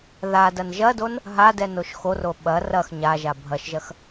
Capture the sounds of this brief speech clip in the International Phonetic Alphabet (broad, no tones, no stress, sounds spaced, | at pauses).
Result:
ð a d ɐ n ʒ ɐ d o n | ɦ a d ɛ n o ʃ x o r o ɓ ɐ r ɐ x ɲ a ʒ a bʱ ɐ ʃ ʒ ɐ x